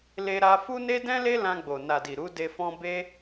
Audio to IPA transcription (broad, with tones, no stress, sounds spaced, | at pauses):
l e˧ ɾ a˧ f u˦ n e˦ d ɛ̃˦ l e˦ l ã˧ ɡ͡b o˨ n a˨ d i˨ ɾ u˨˦ d e˧ f ɔ̃˦ b e˦